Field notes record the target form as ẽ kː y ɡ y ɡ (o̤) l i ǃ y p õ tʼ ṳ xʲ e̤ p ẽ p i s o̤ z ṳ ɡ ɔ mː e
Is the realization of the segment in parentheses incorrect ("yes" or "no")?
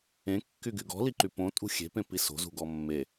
yes